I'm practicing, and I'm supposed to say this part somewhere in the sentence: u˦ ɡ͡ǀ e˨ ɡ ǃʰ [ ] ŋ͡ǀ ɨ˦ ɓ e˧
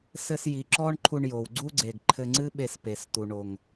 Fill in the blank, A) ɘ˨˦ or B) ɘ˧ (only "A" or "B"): B